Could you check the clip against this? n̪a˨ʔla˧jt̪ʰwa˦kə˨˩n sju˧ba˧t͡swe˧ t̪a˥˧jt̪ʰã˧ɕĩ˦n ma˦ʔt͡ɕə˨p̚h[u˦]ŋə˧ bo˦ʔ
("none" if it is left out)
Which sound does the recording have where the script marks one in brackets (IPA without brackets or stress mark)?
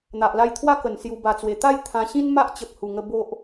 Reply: u˨˩